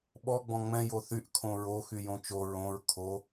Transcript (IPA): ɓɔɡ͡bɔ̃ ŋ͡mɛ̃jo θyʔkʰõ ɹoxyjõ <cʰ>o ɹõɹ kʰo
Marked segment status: incorrect: t͡ʃ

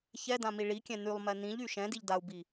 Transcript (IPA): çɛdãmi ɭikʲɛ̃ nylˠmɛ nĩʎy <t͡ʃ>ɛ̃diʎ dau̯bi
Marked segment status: incorrect: ʃ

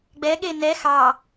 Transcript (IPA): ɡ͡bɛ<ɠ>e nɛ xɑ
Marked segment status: correct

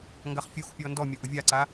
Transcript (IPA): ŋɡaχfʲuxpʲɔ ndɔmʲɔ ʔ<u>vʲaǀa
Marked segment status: incorrect: ʊ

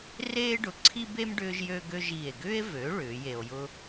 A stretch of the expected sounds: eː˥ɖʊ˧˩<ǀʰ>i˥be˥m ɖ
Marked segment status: correct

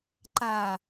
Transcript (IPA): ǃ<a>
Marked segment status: correct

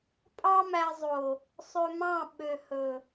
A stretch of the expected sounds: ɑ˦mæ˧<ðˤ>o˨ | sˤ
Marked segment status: incorrect: zˤ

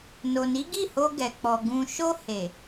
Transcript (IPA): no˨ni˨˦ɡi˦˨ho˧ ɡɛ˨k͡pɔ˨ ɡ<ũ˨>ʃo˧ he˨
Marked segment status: correct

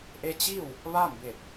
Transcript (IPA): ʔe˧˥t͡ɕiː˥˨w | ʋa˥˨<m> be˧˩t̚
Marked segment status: correct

